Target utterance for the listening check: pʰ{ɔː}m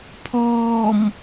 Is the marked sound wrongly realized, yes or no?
no